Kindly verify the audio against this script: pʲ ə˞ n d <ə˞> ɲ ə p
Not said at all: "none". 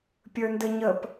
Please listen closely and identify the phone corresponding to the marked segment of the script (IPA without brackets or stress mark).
ə